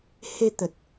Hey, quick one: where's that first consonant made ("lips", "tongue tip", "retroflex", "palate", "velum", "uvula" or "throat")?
throat